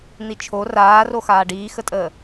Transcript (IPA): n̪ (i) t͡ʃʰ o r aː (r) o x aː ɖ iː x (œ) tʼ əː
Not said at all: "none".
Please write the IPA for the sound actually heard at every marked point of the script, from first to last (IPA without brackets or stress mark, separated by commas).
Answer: i, r, ə